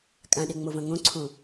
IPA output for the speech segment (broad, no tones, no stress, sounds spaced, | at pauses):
kʼ ã ɗ e ŋ͡m o v ɐ̃ ŋ õ ǀʰ õ